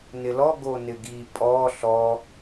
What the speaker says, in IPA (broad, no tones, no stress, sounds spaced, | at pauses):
n ɪ l ɔ ɡ o n ɪ ɡ i pʼ ɔ ɬ ɔ